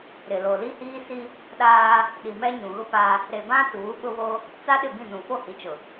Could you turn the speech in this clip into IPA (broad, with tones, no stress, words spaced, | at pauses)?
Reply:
ɾɪ˨lo˨li˦hiː˦ si˦ | ɗaː˦ | ɗi˨mɛ˦ ɲũ˨ɣʊ˦pa˦ | ɾe˨bã˦ tuː˨˦ɓʊ˦βo˦ | t͡sa˦ ɗɪ˦˨bĩ˦˨nũ˨ fo˦˨hi˨t͡ʃʊ˨